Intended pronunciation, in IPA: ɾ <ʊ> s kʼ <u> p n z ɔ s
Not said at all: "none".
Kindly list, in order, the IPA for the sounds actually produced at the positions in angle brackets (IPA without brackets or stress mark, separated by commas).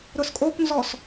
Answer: ʊ, o